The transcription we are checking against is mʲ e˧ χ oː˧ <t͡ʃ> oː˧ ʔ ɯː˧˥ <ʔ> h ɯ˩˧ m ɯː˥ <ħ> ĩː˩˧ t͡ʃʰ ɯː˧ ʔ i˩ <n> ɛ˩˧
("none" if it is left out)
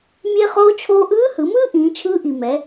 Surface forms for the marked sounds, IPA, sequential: t͡ʃʰ, none, ʔ, m

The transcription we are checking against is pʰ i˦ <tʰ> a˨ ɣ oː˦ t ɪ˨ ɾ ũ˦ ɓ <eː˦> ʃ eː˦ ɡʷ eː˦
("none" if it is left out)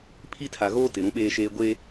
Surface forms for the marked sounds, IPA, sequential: tʰ, eː˦

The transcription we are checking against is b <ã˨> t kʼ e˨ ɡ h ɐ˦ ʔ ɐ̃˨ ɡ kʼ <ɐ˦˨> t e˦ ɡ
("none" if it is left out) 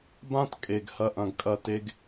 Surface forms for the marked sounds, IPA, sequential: ã˦, ɐ˦

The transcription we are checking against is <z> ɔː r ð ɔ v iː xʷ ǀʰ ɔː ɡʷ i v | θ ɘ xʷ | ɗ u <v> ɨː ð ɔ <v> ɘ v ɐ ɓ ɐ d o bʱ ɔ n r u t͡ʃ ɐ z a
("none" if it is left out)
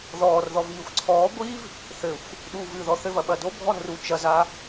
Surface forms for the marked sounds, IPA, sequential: ð, v, θ

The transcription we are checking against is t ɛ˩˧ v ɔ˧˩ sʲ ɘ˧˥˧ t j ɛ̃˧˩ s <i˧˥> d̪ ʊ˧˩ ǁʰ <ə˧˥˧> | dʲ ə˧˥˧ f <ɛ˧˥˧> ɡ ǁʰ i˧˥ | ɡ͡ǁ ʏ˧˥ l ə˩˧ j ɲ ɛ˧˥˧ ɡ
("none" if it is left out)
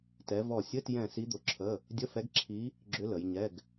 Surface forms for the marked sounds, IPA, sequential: i˧˥, ə˧˥˧, ɛ˧˥

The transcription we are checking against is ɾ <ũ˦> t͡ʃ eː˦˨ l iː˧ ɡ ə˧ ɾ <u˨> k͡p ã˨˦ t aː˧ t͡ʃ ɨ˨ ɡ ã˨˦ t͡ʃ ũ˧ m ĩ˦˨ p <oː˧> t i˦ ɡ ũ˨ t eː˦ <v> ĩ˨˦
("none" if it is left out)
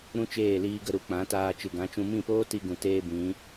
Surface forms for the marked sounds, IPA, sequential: ũ˦, u˨, oː˦, b

